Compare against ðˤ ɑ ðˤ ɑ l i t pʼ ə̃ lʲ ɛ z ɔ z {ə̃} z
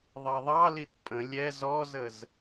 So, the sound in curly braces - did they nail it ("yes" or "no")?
no